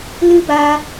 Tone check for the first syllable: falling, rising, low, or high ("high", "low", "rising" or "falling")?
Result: high